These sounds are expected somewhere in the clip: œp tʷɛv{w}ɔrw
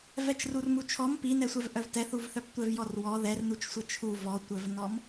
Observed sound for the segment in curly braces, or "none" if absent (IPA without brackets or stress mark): j